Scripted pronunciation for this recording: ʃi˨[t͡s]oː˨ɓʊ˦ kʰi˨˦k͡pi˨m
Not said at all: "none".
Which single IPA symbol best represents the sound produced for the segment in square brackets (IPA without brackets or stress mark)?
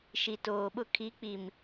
t